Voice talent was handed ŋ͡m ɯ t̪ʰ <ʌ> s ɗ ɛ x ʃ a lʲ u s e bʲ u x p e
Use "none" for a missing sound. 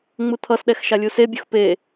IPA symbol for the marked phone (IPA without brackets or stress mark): ʌ